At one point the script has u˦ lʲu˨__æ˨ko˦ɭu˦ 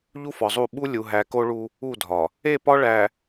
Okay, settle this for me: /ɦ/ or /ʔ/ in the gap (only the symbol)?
ɦ